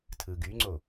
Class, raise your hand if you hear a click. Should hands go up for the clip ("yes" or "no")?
yes